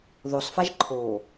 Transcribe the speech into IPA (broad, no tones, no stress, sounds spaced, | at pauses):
ð o sˤ f a ʒ ǃʰ o